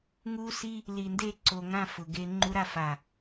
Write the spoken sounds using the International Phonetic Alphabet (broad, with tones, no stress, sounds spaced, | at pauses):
ŋ u˦ s i˦ | l i˨ n d e˦˨ ǀ o˨ ŋ ã˦˨ f ʊ˨ ɡ e˦ ŋ͡ǃ u˦ ɾ a˦ f a˨